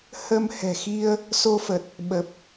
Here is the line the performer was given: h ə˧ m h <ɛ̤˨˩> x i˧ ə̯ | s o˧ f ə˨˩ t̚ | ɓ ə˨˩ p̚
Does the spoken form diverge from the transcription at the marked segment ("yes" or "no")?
no